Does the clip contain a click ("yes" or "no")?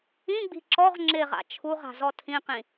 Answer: yes